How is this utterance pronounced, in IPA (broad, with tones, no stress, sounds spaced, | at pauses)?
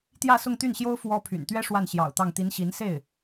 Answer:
t̪ j ä˥˧ s ʊ˥˧ ŋ t̪ y˥˩ n ɕ j o˥ ʊ̯ f w ɔ˥ pʰ y̰˨˩ n t̪ ɥ ɛ˥ ʂ w a˥˩ n ɕ j ɑ̰˨˩ ʊ̯ t̪ ɑ˥˩ ŋ t̪ i˧˥ n ɕ i˧˥ n s e˥˩ ɪ̯